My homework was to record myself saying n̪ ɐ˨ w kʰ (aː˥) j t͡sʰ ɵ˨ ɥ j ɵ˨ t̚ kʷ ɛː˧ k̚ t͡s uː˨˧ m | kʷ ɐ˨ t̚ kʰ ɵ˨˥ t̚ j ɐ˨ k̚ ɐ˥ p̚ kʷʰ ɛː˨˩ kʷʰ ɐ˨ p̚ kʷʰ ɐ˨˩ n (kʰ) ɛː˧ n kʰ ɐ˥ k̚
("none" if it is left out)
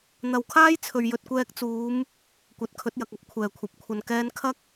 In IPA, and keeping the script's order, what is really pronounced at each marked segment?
aː˥, k

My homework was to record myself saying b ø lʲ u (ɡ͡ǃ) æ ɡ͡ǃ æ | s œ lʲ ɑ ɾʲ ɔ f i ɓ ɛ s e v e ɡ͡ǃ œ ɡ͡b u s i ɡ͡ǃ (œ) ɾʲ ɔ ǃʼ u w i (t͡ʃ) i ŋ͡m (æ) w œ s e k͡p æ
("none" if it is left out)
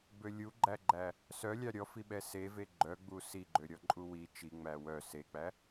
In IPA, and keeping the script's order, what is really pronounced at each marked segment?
ɡ͡ǃ, ø, t͡ʃ, æ

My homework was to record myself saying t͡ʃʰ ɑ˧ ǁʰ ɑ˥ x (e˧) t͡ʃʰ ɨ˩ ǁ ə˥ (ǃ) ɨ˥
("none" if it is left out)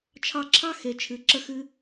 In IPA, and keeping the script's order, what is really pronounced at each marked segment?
e˩, x

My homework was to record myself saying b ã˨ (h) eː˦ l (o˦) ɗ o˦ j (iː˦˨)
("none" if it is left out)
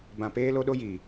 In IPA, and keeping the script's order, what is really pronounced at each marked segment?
p, o˦, iː˨

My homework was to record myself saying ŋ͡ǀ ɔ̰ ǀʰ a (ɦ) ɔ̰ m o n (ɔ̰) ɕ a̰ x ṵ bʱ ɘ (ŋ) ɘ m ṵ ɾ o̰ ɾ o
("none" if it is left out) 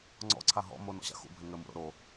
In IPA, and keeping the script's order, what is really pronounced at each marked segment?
ɦ, ɔ̰, ŋ

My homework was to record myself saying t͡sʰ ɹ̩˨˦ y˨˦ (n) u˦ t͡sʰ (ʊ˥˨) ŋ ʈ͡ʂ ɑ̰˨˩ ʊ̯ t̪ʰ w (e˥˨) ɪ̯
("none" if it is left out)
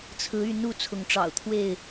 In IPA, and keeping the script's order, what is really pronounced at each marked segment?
n, ʊ˨˦, e˥˨

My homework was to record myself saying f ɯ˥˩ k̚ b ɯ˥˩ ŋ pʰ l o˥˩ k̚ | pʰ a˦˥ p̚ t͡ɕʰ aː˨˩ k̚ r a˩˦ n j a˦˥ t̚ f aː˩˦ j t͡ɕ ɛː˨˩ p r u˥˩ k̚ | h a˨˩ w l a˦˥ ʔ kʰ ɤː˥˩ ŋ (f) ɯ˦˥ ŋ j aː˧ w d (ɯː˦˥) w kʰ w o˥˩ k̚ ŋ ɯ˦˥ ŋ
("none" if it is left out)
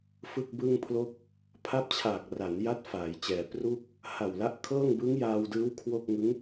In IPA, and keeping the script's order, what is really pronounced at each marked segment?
b, ɯː˦˥

